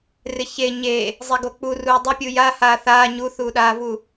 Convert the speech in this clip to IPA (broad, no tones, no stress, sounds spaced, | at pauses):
r ɪ ç e ɲ e | zˤ ɛ ɡ o k͡p u r uː dˤ ɪ pʲ u j a h aː θ aː ɲ u θ uː ɗ aː v u